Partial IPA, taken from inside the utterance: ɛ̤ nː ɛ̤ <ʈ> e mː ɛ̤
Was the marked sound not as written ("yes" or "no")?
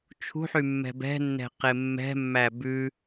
yes